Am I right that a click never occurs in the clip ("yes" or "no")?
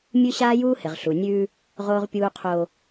yes